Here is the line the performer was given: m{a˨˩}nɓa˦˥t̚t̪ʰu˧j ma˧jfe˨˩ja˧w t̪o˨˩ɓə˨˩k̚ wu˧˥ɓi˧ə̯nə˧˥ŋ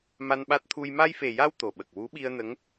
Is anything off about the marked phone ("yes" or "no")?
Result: yes